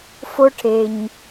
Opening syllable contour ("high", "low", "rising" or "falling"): high